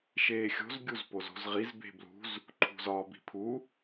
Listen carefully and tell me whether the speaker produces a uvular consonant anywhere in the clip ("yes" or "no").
yes